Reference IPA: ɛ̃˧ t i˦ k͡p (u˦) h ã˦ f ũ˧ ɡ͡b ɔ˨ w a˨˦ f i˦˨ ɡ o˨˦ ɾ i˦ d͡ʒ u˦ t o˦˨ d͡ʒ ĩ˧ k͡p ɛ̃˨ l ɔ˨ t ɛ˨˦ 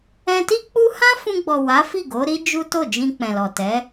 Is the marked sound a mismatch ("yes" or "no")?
no